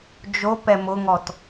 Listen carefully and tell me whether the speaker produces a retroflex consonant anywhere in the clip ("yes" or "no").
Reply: no